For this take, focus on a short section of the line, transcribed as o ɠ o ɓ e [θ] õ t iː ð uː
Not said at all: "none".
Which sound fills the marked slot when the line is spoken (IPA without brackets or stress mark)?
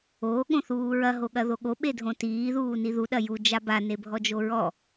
dʱ